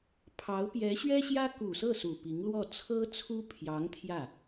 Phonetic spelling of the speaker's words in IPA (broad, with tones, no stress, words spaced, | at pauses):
pʰɑ˧˥ʊ̯ pjɛ˧˥ ɕɥɛ˥ɕjä˥ ku˨˩sɤ˥˩ su˨˩pi˧˥ŋ lwɔ˥˩ t͡sʰɤ˥t͡sʰu˥pʰjɑ˧˥ŋ t̪ʰjä˥˩